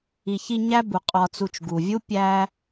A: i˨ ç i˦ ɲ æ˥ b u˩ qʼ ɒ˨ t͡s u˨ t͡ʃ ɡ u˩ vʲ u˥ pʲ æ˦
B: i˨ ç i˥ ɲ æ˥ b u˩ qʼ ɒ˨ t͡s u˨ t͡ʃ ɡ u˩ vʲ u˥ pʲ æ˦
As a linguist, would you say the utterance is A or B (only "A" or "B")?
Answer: A